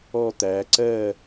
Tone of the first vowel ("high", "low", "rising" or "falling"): falling